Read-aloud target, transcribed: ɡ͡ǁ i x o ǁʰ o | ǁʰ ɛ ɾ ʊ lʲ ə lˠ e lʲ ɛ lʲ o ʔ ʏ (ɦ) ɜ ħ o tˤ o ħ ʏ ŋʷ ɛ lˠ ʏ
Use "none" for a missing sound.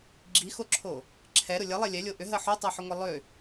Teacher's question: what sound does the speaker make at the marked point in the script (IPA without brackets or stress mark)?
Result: ɦ